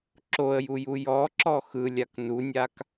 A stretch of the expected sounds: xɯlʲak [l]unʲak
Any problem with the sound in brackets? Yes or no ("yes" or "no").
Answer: yes